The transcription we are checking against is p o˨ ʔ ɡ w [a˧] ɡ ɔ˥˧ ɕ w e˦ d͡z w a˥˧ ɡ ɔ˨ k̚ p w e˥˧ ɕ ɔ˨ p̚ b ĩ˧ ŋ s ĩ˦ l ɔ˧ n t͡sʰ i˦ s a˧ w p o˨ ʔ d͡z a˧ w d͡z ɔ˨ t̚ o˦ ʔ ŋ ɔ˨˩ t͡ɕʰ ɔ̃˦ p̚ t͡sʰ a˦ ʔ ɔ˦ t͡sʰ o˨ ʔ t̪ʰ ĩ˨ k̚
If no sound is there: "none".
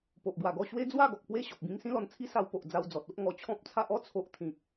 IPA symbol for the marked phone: a˨˩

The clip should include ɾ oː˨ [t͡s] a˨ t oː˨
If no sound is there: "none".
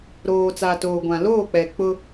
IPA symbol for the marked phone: t͡s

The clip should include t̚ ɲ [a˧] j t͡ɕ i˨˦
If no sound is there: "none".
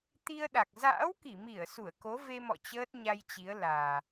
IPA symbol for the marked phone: a˧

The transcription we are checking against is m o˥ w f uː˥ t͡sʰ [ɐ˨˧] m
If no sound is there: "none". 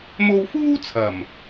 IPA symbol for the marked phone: ɐ˨˩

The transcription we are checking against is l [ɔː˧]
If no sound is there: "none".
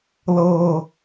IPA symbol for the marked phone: ɤː˧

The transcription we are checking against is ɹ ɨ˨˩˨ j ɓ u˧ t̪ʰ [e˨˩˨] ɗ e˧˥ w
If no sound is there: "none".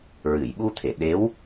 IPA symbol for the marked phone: e˨˩˨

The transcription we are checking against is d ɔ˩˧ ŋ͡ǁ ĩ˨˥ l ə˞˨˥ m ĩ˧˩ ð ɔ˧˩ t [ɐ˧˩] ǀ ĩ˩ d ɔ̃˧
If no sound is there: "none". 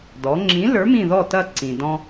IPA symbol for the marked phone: ɐ˧˩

